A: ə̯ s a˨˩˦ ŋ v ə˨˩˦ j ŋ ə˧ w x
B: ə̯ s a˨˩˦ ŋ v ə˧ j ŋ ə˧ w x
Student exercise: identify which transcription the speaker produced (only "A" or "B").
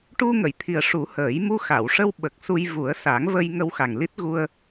B